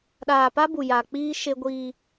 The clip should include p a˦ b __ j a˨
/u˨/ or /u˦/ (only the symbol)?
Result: u˨